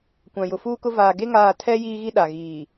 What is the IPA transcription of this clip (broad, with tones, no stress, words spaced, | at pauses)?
kʷã˨jʊ˨fuː˦kʊ˦ vaː˨ɡe˦ ŋaː˦˨ tʰɛ˦ jiː˦ɣi˦ɗa˨ɣiː˨